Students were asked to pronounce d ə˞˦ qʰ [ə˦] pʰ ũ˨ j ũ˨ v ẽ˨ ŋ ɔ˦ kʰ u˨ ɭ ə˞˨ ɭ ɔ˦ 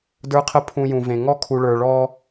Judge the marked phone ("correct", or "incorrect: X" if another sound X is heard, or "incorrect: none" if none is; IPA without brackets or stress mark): correct